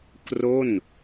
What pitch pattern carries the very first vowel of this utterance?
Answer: falling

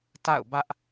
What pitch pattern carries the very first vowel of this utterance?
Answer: falling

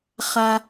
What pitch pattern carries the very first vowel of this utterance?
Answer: high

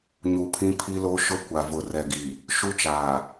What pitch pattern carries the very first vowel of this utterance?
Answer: low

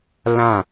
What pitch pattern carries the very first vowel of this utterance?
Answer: falling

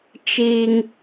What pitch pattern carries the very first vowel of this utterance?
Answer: high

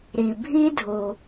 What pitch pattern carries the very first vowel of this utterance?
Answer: low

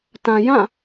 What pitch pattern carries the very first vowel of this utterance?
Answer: low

